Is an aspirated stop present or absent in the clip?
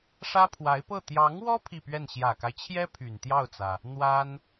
present